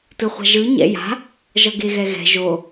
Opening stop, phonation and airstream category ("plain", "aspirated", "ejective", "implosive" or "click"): plain